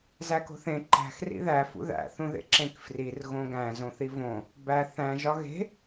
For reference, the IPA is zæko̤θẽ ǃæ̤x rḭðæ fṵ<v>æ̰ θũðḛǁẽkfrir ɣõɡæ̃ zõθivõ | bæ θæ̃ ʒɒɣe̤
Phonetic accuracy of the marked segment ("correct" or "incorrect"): incorrect